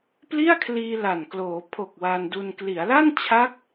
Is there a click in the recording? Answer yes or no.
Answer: no